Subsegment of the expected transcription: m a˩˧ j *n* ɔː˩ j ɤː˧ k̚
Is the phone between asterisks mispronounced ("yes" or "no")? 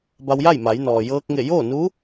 no